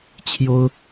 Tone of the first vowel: high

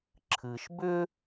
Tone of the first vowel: low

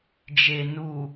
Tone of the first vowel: low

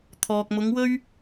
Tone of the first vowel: low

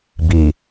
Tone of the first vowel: low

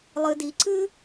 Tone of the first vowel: low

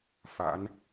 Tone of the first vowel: rising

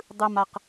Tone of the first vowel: low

